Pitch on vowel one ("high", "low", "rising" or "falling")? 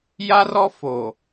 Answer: high